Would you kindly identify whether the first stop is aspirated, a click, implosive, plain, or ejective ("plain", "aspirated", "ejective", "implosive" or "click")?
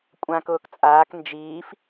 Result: ejective